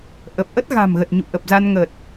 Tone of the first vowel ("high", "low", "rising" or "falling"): low